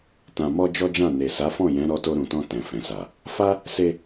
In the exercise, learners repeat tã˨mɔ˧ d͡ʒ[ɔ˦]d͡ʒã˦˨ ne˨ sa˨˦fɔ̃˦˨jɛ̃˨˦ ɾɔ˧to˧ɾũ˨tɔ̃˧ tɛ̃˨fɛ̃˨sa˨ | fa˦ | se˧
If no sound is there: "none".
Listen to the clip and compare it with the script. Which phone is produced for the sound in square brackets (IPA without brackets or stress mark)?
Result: ɔ˦